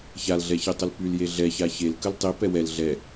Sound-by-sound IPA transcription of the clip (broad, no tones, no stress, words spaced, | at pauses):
çalɮɛçitˤəl pylje ɮɛça çelkəl tˤipɛ wɛl ɮɛ